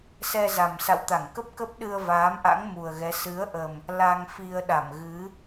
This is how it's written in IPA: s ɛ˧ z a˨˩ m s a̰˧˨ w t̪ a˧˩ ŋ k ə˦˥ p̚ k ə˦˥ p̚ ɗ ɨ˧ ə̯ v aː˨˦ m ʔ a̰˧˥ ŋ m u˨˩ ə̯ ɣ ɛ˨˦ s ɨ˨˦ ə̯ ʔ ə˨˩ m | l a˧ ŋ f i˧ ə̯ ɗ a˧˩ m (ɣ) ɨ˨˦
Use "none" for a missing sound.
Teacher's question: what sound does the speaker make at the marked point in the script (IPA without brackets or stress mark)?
ɣ